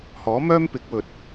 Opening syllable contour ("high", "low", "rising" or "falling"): rising